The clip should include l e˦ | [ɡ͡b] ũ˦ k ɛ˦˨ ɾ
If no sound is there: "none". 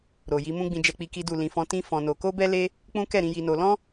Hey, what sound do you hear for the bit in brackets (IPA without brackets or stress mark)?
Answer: k͡p